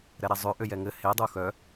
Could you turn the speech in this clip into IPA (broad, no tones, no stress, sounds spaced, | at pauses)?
ɾ ɛ ɾ ɛ zˤ ø ʔ ø j ɛ ŋ ɘ h e dˤ u x œ